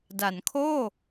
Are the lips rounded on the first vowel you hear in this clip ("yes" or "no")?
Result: no